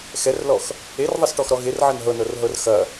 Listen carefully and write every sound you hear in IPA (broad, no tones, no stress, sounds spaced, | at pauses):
x ɛ r l ɔ x | e r ðˤ ɐ s ʈ ɔ x ɾ ɔ ɣ e r ʕ ɐ n ɦ ɤ n ɤ r ɦ ɤ r x ɐ